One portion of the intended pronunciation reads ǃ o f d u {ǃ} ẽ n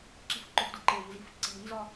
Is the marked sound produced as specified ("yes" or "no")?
yes